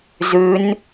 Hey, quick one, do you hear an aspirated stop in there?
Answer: no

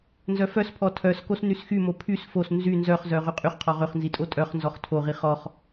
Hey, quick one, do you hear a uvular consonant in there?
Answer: yes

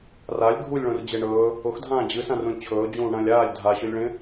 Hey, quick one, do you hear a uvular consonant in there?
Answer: no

